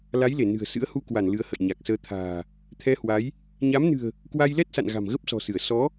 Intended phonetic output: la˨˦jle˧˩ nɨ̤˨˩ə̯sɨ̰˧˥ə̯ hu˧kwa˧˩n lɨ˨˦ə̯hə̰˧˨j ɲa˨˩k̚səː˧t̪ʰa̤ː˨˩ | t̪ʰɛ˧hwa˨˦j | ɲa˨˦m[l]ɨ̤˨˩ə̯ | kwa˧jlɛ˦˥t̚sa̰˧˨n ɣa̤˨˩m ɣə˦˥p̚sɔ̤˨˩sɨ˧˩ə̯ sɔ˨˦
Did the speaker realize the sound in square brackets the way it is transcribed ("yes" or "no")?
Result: no